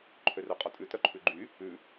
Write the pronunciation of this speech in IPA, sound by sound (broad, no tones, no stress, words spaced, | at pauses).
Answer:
ǃʰørœqʼɔtʼʉ tœǃʰʉɡ͡ǃy | ʉ